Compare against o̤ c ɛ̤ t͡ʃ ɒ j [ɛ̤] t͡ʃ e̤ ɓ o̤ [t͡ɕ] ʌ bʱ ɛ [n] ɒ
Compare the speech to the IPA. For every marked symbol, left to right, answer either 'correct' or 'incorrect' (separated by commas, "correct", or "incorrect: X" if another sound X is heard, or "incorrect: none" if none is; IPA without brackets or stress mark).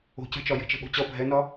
incorrect: e̤, correct, correct